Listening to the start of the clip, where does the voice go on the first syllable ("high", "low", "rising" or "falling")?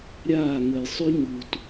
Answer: falling